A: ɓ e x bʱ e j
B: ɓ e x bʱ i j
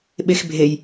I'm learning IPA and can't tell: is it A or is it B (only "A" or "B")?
A